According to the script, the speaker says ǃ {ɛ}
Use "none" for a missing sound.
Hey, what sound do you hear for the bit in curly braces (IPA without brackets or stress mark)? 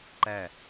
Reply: æ